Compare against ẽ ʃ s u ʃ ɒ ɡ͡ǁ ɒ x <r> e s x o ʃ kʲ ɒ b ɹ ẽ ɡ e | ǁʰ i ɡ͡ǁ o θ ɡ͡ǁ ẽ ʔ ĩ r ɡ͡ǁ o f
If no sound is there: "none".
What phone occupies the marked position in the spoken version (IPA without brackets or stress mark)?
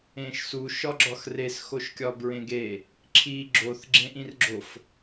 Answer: r